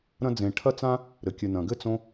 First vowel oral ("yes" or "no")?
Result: no